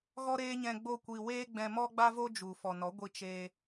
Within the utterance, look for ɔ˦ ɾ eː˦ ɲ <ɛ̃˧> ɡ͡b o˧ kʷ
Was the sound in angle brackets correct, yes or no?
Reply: yes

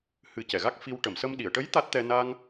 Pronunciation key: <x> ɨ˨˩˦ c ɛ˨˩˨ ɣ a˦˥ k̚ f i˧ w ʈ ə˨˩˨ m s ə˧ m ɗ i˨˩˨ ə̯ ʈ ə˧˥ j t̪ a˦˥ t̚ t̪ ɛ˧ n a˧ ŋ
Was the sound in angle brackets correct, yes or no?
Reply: no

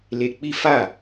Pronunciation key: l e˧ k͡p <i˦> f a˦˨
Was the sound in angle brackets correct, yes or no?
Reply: yes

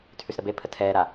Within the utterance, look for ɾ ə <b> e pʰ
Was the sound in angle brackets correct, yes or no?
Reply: yes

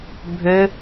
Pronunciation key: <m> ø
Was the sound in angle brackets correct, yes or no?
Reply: no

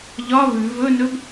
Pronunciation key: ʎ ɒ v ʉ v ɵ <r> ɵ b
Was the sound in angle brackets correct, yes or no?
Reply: no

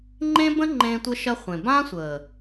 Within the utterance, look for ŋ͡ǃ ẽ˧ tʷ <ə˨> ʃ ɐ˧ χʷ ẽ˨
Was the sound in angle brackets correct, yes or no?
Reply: no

